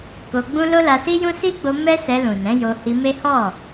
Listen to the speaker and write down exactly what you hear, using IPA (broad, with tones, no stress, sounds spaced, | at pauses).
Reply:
k o˧ ɡ͡b ũ˦ l o˦ l a˧ s i˦ j ũ˦ s i˦ ɡ͡b o˧ m ɛ˦ s ɛ˧ l ũ˨ n ɛ̃˨˦ j o˧ h i˧ m e˦ h ɔ˦˨